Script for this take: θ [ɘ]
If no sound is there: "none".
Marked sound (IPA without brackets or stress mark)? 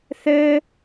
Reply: ɘ